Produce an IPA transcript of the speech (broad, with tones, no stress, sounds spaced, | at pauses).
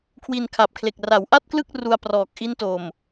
kʰ w i˧ n kʰ a˨˩ p̚ kʰ l e˨˩ k̚ r a˩˦ w ʔ a˥˩ t̚ k l ɯ˥˩ k̚ r u˧ a̯ p r ɔː˨˩ k̚ ʔ i˦˥ n t o˨˩ m